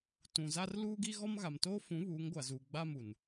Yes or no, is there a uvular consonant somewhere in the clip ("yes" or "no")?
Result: no